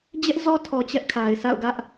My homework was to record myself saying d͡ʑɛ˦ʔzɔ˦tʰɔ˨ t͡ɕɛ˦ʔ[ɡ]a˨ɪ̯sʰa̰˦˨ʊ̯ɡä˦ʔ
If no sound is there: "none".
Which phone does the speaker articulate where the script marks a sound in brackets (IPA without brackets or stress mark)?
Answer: kʰ